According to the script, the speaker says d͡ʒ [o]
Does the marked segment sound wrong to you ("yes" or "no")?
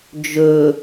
yes